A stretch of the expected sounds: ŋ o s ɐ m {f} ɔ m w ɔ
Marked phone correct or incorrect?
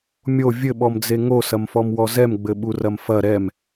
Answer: correct